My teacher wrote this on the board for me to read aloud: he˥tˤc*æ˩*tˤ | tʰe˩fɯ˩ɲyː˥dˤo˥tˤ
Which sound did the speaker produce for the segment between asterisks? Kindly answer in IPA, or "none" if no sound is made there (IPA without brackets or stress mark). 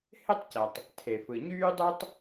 æ˩